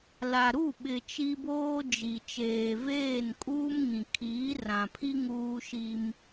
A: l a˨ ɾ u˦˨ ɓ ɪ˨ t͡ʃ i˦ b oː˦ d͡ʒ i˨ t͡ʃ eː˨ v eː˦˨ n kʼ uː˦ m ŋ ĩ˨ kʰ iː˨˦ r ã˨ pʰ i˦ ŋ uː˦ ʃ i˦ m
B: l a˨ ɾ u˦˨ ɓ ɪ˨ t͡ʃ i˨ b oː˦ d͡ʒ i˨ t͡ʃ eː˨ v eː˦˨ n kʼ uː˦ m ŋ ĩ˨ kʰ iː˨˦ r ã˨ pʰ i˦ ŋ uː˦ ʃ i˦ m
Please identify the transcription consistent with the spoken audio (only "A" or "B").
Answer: A